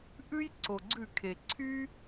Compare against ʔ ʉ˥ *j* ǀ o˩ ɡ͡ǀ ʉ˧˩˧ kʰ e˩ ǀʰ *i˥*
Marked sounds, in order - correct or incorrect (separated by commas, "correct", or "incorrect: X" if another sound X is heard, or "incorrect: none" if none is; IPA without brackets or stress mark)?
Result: correct, incorrect: y˥